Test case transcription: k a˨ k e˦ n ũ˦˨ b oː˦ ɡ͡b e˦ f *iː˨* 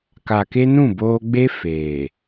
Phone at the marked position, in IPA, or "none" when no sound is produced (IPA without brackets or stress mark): eː˨